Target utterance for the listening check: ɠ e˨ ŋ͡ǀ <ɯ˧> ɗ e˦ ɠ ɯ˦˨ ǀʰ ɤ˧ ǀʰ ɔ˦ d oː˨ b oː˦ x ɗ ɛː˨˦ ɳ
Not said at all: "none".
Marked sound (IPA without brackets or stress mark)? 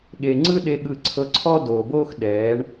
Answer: ɯ˦